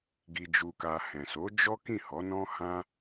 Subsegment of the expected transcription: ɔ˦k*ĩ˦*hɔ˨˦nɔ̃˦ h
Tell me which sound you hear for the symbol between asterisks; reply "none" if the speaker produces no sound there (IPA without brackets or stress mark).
ĩ˦˨